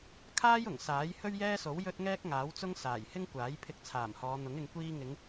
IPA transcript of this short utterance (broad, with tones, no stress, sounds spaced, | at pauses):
kʰ aː˥ j ʊ˨˩ ŋ s aː˨˥ j h ɵ˥ ɥ j ɛː˥ s o˨˥ w j ɵ˥ t̚ ŋ ɛː˥ k̚ ŋ aː˨˥ w t͡s ʊ˥ ŋ s aː˨˩ j h ɪ˥ ŋ kʷ aː˨˥ j pʰ ɪ˧ k̚ t͡sʰ aː˨˩ m h ɔː˨˧ n̪ ʊ˨˥ ŋ ɪ˨ ŋ kʷ iː˧ ŋ ɪ˨˧ ŋ